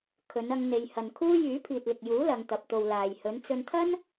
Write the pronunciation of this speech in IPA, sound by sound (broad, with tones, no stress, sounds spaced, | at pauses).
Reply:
kʰ ɵ˨˧ n ɐ˧ ŋ n̪ e˨ j h ɐ˨ n kʰ uː˥ j yː˨˥ pʰ iː˨ t̚ l ɪ˨ k̚ j uː˨˥ l ɐ˧ ŋ t̪ ɐ˨ p̚ t̪ o˨ w l aː˨ j h ɵ˨˧ n t͡s ɵ˧ n t̪ʰ ɐ˥ n